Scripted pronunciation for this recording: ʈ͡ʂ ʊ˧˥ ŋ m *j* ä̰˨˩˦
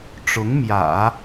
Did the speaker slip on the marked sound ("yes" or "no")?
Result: no